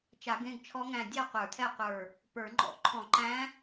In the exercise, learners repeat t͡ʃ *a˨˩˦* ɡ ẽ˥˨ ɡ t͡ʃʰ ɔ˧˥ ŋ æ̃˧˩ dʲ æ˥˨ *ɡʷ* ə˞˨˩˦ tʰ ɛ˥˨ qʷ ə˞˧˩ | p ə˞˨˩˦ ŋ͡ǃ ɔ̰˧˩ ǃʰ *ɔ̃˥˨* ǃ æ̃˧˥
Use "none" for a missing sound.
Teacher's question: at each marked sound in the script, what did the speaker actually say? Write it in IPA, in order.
a˨˩˦, qʷ, ɔ̃˨˩˦

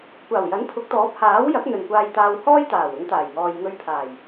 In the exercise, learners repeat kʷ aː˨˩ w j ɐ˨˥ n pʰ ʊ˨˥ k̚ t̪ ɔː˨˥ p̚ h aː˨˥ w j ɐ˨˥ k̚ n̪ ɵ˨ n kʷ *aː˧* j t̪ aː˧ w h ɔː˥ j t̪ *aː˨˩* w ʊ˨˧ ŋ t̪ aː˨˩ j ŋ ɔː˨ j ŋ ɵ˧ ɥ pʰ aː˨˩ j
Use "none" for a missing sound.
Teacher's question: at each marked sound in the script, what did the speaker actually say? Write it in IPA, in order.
aː˧, aː˨˩

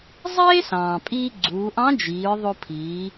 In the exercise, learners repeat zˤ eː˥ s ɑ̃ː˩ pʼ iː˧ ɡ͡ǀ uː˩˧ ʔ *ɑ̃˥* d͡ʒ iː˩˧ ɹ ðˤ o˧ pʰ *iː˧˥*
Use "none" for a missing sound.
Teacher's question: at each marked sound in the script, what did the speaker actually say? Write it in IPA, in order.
ɑ̃˧˥, iː˩˧

